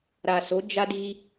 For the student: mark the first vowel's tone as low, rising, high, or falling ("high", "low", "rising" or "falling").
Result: low